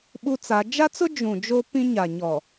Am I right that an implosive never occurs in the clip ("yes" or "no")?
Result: no